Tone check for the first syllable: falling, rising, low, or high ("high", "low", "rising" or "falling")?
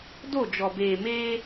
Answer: falling